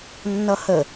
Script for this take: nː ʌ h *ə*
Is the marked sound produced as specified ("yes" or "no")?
yes